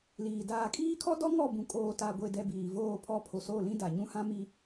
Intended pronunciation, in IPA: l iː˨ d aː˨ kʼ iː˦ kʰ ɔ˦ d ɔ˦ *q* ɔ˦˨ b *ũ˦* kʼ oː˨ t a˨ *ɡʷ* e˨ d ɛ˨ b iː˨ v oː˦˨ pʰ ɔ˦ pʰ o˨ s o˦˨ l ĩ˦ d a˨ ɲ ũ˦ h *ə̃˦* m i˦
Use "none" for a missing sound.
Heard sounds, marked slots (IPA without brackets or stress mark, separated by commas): ŋ, ũ˨, ɡʷ, ã˦